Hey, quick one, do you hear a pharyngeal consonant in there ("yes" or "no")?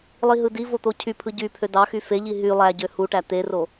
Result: no